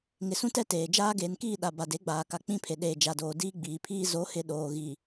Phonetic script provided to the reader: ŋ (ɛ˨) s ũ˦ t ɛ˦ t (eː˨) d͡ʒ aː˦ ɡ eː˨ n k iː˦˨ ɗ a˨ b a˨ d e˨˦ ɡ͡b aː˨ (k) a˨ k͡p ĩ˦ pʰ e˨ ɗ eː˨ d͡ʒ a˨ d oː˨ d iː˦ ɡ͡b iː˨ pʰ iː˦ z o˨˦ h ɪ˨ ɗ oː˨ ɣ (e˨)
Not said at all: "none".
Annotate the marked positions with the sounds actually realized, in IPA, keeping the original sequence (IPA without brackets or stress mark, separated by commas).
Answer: ɪ˨, eː˨, k, i˨